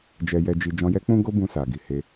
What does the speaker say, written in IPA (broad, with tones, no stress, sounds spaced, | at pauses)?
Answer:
d͡ʒ ɛ˧ j ɛ˧ d͡ʒ i˧ d͡ʒ ɔ̃˧ j ɛ˦ k͡p ũ˦ ɡ o˦ b ũ˧ s a˨ ɡ i˨ h e˧